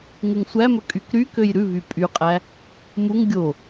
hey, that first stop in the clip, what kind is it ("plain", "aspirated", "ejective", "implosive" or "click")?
ejective